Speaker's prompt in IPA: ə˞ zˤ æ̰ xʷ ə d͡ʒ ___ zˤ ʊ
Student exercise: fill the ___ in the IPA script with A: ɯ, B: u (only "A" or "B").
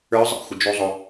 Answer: B